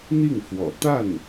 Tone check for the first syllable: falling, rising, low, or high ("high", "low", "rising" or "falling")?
falling